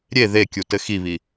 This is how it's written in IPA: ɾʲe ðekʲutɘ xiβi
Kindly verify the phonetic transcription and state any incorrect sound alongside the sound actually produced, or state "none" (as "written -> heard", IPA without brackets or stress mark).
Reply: none